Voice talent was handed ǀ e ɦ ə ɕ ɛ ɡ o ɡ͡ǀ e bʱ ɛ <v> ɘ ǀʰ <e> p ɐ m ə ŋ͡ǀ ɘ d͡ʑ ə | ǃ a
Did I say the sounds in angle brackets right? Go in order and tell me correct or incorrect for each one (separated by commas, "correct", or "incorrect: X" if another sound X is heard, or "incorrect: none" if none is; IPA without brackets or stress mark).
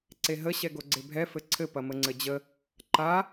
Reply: incorrect: f, incorrect: ɘ